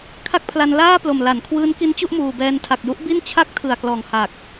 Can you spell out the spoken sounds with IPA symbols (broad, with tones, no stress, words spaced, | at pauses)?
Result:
kʰa˥˩k̚pʰla˧n laː˥˩ plo˨˩mla˩˦nkʰwɯː˦˥n ki˦˥nt͡ɕu˥˩ʔmuː˨˩bɛː˧n tʰa˨˩k̚ju˦˥ʔbi˥˩n t͡ɕʰa˥˩k̚tʰɯ˨˩a̯klɔː˨˩ŋha˨˩k̚